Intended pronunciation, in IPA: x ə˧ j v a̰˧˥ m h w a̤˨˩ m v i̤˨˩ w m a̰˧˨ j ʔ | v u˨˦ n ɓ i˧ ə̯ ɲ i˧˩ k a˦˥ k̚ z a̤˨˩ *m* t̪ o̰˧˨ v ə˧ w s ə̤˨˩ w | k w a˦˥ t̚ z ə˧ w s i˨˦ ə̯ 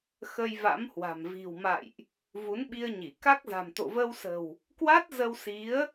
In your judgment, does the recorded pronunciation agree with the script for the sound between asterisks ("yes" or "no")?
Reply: yes